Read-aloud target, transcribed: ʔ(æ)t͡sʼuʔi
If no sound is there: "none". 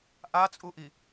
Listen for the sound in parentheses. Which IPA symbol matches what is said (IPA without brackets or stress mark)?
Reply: a